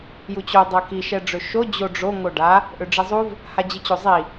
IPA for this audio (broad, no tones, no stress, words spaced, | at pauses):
jut͡ɕo dˤɛki ʃɛɖ͡ʐøʃo d͡ʑoɖ͡ʐo ŋoɖa | ʔøɖ͡ʐizˤuv | had͡ʑit͡ɕozˤi